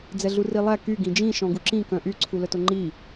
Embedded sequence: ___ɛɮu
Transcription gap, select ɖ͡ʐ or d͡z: d͡z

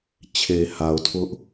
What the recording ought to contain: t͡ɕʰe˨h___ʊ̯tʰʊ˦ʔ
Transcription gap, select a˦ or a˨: a˨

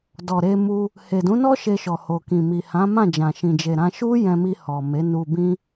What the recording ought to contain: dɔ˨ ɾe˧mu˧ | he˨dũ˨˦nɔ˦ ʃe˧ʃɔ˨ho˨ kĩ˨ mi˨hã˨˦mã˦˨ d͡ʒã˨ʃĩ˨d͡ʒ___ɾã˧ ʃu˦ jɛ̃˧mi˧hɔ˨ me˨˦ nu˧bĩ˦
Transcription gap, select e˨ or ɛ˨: e˨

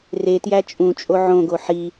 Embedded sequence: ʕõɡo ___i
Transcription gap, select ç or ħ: ħ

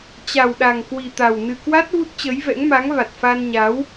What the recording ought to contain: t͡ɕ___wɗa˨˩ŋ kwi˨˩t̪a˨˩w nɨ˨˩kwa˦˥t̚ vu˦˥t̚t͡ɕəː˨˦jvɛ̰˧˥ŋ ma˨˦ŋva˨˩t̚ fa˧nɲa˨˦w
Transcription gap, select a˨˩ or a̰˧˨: a˨˩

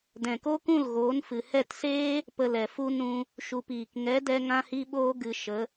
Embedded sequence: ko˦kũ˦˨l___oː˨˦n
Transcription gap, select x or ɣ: ɣ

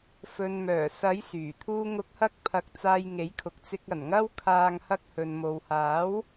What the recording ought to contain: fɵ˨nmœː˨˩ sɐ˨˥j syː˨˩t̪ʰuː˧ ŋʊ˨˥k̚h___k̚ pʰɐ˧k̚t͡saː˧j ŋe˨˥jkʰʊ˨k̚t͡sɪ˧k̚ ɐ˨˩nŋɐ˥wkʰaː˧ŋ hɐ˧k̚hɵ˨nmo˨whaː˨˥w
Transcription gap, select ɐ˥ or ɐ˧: ɐ˧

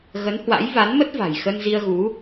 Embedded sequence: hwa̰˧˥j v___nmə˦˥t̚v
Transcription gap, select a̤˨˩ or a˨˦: a˨˦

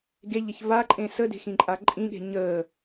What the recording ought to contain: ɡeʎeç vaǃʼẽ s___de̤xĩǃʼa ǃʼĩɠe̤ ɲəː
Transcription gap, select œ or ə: ə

